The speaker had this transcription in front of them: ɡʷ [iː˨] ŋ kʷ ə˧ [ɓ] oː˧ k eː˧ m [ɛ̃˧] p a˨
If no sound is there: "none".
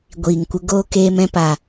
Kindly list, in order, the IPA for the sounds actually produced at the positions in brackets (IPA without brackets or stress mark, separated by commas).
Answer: iː˨, ɡ, ɛ̃˧